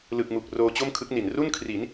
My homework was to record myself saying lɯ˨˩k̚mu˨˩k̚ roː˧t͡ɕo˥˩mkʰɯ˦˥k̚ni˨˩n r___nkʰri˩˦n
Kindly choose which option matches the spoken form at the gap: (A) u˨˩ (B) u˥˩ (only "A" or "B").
B